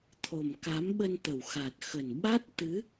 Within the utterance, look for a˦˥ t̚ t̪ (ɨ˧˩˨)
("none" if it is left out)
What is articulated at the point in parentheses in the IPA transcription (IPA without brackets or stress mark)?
ɨ˨˦